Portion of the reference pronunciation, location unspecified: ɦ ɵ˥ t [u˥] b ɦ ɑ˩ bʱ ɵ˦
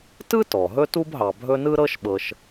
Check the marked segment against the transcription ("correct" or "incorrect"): correct